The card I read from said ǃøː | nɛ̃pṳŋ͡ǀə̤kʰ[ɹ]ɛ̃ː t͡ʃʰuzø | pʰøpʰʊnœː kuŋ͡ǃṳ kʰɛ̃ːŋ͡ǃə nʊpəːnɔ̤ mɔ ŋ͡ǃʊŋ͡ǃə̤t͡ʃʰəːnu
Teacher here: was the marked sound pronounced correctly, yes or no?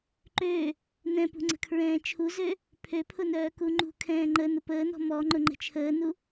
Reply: yes